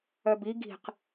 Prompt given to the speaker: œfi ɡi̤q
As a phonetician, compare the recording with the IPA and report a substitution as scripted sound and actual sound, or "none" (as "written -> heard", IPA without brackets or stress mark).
f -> b